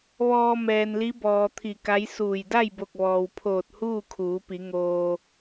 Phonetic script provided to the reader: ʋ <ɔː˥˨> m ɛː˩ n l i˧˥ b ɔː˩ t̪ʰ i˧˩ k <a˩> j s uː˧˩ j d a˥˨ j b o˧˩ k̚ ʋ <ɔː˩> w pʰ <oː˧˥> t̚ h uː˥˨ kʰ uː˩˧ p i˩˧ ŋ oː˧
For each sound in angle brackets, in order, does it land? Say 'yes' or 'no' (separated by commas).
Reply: no, no, yes, no